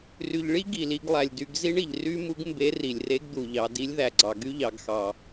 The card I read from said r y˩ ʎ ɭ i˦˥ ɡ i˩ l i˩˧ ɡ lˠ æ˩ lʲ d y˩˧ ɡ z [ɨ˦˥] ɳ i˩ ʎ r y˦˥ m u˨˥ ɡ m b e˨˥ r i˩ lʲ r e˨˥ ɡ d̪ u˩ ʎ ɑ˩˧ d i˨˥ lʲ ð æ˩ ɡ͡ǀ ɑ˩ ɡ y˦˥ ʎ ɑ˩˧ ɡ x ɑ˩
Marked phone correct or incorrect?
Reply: incorrect